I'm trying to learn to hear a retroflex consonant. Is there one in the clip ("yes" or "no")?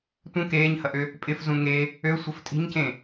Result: no